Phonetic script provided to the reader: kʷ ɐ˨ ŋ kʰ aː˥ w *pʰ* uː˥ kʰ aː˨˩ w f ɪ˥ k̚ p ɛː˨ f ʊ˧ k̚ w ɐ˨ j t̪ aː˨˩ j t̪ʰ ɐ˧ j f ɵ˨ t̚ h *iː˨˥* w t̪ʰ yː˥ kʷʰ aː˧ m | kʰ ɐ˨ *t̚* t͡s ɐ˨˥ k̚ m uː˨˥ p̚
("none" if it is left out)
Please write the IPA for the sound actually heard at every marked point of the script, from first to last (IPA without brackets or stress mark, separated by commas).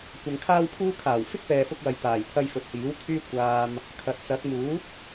pʰ, iː˨˥, t̚